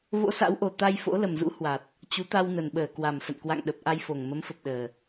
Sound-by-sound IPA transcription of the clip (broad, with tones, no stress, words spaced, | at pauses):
vo̰˧˥sa̰˧˥wʔo˨˩ t̪a˧jfo̰˧˥ lə˨˩mzṵ˧˥hwa˨˩t̚ | t͡ɕu˨˦ t̪a˧wnə˨˩nɓəː˧˩ kwa˨˩msə̰˧˨nkwa̰˧˨ŋ ɗə˨˩p̚ʔa˧jfo˨˩ŋ mə˨˦mfə˨˩p̚ɗəː˨˩